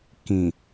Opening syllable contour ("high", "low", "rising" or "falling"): low